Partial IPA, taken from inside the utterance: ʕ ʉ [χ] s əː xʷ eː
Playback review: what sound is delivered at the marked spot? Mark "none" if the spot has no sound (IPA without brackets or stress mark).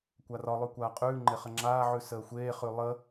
none